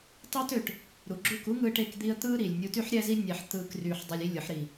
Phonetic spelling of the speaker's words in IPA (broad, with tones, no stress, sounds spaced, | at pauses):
tˤ yː˧ t ø˨ ʈ | ɾ u˨ ɡ͡ǁ u˦˨ k u˦ ŋ ɯː˧ ʈ e˧ k d̪ i˦ ə̯ t̪ ɯː˦ ɾ iː˨ lʲ nʲ u˧ t y˦ ħ ɾʲ æ˦ z i˦ nʲ æ˧ ħ t̪ ɯː˧ k r yː˧ ħ dˤ i˧ lʲ i˦ lʲ ɯ˨˦ ħ ɾ i˧